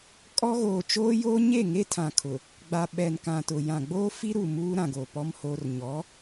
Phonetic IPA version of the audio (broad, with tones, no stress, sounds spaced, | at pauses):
kʼ ɔ˦ ɣ oː˨ t͡ʃ oː˦ j oː˦ ɲ e˦˨ ŋ e˦ tʰ ã˨ kʰ ʊ˨ | ɡ͡b a˨ ɓ ɛ˨ n k ã˨ t ʊ˨ j ã˨ ɡ͡b oː˦ f i˦ ɾ u˨ m uː˦ ɾ ã˨ ɡ o˨ p ɔ˦ m h oː˦ r ɲ ɔ˨˦